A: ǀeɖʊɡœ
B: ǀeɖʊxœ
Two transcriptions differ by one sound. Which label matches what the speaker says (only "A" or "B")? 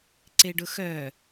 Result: B